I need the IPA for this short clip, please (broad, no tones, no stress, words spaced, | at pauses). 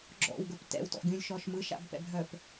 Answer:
ɡ͡ǁɔ̰wɡə˞p tɛ̰wtɔ̰ɡʲũlʲʃɔʃ mɯʃa̰bpɛ̰bʱœp